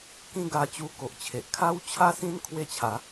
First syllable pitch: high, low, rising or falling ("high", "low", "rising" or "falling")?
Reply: high